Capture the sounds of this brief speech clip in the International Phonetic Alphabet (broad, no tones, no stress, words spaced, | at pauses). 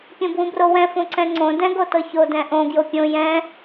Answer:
pʲõbwũbrowɛ̃ fõǀɛ̃ŋ͡ǀõ dɛ̃ɡotɤço dɛ̃ʔõ ɡjopʲõ jɛ̃